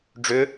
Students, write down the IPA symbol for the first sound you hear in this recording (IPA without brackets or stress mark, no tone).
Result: ɖ͡ʐ